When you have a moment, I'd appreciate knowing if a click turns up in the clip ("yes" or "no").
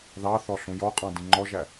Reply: yes